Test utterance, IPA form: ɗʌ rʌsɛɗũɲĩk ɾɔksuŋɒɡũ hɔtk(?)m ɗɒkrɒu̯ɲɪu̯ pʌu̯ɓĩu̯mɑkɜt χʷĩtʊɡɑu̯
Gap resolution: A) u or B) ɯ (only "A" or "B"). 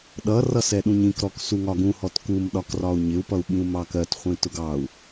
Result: A